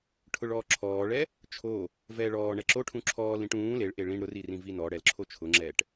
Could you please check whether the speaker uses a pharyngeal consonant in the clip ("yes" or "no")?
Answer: no